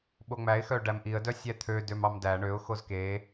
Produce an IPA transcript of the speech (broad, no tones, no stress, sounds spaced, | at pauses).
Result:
ɓ o ŋ͡m æ ɪ̯ x œ ɖ æ m ʔ i ə̯ d œ sʲ æ t̪ʰ ø d ø m ɑ m d æ ɳ ø ʊ̯ x o z k e